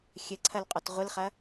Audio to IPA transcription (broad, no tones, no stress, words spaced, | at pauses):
xʲɘǀʰɐl qʼɔtʁʷɨlχɐ